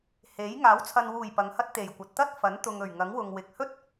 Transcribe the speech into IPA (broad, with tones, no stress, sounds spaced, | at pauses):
h e˨˥ j ŋ aː˨˥ w t͡sʰ ɐ˨ n w uː˨˩ j p ɐ˨˧ ŋ h ɐ˥ t̚ t̪ e˨˩ j kʷ ɐ˨ t̚ t̪ ɐ˥ t̚ f ɐ˨˥ n t̪ ʊ˨ ŋ ɵ˨˩ ɥ ŋ ɐ˨˥ ŋ w ʊ˨ ŋ w ɪ˨ k̚ h ɵ˥ t̚